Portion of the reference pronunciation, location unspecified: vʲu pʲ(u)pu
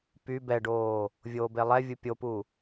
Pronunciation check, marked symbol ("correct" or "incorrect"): incorrect